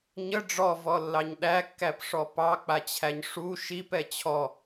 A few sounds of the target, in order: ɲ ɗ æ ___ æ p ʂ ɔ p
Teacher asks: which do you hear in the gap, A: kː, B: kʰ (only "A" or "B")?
A